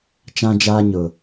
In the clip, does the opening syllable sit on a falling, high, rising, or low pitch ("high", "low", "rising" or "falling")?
high